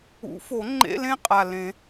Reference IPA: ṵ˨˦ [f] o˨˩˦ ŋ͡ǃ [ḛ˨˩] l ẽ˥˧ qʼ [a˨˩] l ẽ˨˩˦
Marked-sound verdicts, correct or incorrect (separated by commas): correct, incorrect, correct